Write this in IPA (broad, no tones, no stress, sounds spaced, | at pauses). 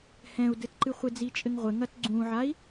h ɛ̃ u̯ d ɘ t ǃ ɨ χʷ e d͡z i t͡ʃʼ ɘ ŋ ʁʷ ɘ ŋ ɐ t ɡ͡ǀ ũ ʕ a i̯